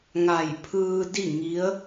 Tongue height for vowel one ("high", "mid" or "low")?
low